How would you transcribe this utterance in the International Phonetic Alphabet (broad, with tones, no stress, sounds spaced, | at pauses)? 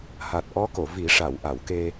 h a˨˩ t̚ ʔ ɔ˧˥ k o˨˩˨ v i˨˩˦ ʂ a˨˩˨ w ʔ a˨˩˨ w k e˧